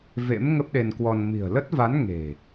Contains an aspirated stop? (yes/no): no